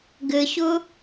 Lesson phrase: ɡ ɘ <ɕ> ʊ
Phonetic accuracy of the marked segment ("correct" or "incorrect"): correct